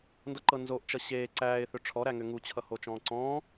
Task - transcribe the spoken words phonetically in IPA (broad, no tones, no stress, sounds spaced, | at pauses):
n d ʌ ǃ ɤ n z o ʔ t͡ʃ ʌ ɕ eː ǀ æː ɪ̯ θ ʏ ʈ͡ʂʰ ɔ ɾ æ ŋ ʏ ŋ u t͡ɕʰ ʌ h o t͡ʃ ɔ̃ː ǀ ɔ̃ː